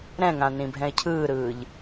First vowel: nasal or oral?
nasal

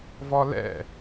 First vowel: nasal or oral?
oral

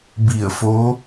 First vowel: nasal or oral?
oral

